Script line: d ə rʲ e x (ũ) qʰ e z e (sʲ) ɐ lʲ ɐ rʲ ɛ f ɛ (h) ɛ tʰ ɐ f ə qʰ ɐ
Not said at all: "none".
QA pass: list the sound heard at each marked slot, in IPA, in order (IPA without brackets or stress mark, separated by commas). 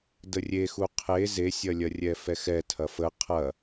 u, sʲ, x